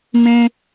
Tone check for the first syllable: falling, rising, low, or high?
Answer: high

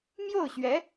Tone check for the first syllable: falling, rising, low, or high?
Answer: falling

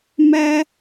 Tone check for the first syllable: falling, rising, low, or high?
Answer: high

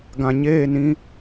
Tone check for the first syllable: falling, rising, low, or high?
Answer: low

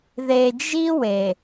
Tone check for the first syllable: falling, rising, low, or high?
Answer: low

